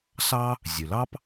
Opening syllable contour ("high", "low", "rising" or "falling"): high